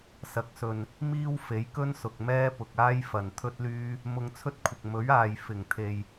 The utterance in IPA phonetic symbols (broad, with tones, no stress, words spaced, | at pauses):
sɐ˨k̚sɵ˨n | miː˥wfe˨˥jkɵ˥nsʊ˨k̚ mɛː˥pʊ˨k̚ aː˥jfɐ˨n t̪ʰɵ˥t̚lyː˥ | mʊ˧ŋt͡sʰɵ˥t̚kʷʰɪ˨k̚ mɵ˨˥ɥaː˨j fɪ˨˩ŋt̪ʰe˨j